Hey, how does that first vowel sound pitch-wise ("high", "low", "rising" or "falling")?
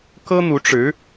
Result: high